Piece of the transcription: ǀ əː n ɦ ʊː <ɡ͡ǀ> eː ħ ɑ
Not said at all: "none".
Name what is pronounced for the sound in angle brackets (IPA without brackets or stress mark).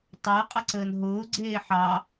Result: ɡ͡ǀ